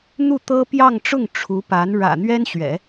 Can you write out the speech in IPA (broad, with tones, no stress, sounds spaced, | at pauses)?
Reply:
n̪ u˥˩ t̪ ɤ˥ p j ɑ˥˧ ŋ ʈ͡ʂ ʊ˥˩ ŋ ʈ͡ʂʰ u˧˥ p a˧˥ n ɻ ä̰˨˩ n̪ ɥ ɛ˥ n ɕ ɥ ɛ̰˨˩˦